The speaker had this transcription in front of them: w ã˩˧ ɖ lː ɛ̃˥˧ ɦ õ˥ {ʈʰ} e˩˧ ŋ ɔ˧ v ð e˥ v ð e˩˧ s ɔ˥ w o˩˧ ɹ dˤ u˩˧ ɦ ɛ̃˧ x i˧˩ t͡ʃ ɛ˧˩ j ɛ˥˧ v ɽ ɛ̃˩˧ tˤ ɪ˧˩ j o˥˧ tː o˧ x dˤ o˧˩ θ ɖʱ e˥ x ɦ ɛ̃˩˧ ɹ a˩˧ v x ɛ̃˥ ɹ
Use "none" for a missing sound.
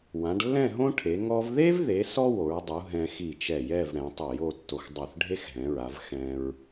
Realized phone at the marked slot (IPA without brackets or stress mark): ʈʰ